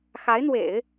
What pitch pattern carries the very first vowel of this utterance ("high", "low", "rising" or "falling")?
rising